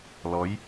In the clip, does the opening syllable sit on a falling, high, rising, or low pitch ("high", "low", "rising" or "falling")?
rising